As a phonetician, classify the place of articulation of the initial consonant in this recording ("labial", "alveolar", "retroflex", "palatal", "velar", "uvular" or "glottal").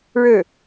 retroflex